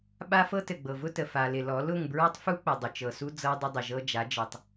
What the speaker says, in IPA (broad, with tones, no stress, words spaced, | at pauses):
ɓa˦fɤ˦tɘ˨ ɡ͡bɤ˨vʊ˦tə˨ fa˨lɪ˨lɔ˨˦ lʊ˦˨ŋbɹɔ˦tˤfu˦ k͡pə˨dˤʊ˨t͡ʃɤ˨su˦ d͡zɤ˦dˤə˦dˤɘ˨ ʒɤ˦d͡ʒa˨˦ d͡ʒɤ˨tˤ